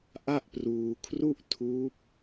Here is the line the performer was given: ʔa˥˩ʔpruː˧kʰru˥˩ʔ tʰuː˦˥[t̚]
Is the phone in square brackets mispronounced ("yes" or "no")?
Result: yes